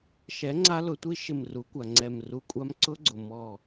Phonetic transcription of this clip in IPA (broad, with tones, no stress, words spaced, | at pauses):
ʃɛ˩˥ ŋ͡ǀa˦˥lʊ˩˥tʷi˦˥ ʃɪ˧˩mru˩˥kʷa˩ ŋ͡ǀɛ˧˩mru˧˩kʷʼa˦˥m ǀʊ˦˥ɡ͡ǀʊ˩ mɔ˧˩